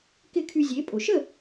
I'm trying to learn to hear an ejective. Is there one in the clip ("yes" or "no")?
yes